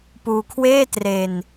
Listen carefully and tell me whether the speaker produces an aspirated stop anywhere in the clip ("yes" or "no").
yes